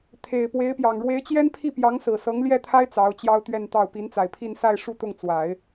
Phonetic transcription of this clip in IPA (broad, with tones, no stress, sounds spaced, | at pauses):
t̪ʰ e˨˩ ɪ̯ p w e˧˥ ɪ̯ p j ɑ˨˩ ŋ ɻ w e˧˥ ɪ̯ t͡ɕ j ɛ˥ n pʰ i˥˩ p j ɑ˧˥ ŋ s ɹ̩˨˩ s ɤ˧˥ ŋ l j ɛ˥˩ t̪ʰ a˥ ɪ̯ t͡s ɑ˧˥ ʊ̯ t͡ɕ j ɑ˥ ʊ̯ t̪ ɥ ɛ˥˧ n t̪ ɑ˥˩ ʊ̯ p i˧˥ n t͡s a˨˩ ɪ̯ pʰ i˥˧ n s a˥˧ ɪ̯ ʂ u˥˧ t̪ ʊ˥˩ ŋ t͡s w a˨˩˦ ɪ̯